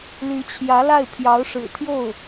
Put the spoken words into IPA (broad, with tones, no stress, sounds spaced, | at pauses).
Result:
l y˧˥ t͡ɕʰ j ä˧˥ l a˥˩ ɪ̯ pʰ j ɑ˧˥ ʊ̯ ʂ ɻ̩˨˩ t̪ʰ j o˥˩ ʊ̯